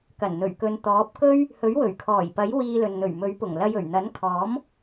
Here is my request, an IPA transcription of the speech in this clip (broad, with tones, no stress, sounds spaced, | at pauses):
k ɐ˨˩ n n̪ ɵ˨˩ ɥ k ɵ˨˧ n t̪ ɔː˨˥ p̚ k ɵ˥ ɥ | h ɵ˨˥ ɥ w ɵ˨˩ ɥ kʰ ɔː˨˩ j p ɐ˨˥ j w iː˧ l ɵ˨ n n̪ ɵ˨˩ ɥ m ɵ˨˥ ɥ p ʊ˨˩ ŋ l ɐ˧ j ɵ˨˩ ɥ n̪ ɐ˨˥ n kʰ ɔː˨˥ m